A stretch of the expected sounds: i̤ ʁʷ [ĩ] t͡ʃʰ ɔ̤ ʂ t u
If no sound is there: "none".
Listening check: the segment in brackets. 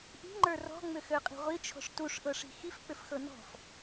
i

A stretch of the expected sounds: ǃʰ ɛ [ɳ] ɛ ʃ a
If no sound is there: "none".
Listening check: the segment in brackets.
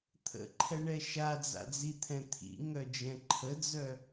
ɳ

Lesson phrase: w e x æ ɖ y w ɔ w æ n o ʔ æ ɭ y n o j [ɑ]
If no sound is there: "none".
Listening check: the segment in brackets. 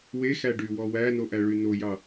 ɑ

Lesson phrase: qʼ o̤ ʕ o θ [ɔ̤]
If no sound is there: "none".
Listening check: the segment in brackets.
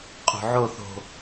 o̤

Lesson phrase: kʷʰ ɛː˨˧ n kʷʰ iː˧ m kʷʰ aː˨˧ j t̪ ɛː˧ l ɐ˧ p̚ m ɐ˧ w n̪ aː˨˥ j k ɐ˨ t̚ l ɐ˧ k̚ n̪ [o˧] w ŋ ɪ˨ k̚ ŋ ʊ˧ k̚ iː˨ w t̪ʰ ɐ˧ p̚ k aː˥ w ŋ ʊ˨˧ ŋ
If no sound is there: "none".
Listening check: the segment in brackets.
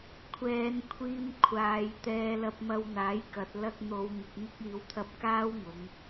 o˨˧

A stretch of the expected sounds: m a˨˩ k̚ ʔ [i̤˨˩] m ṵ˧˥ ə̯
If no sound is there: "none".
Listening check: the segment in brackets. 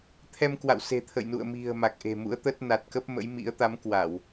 e̤˨˩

